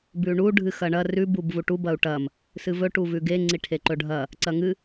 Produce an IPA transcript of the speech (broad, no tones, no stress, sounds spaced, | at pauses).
b ʉ ɳ u ɖʱ ɨ x ɐ ɳ ɐ r ʉ b u b v u ʈ u b ɐ u̯ ʈ ɐ m | s ɨ v ɵ ʈ u v ʉ ɡ e ŋ͡ǀ i ʈʰ e ǃ ɵ ɖʱ ɐ | ǀ ɐ ŋ ɨ